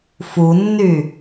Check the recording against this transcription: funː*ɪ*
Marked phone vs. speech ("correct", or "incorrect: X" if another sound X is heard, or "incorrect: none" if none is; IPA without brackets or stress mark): incorrect: y